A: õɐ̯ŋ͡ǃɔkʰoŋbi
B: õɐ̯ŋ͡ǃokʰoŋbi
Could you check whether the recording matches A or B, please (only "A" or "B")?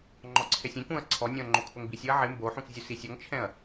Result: B